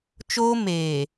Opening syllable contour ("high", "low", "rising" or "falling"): high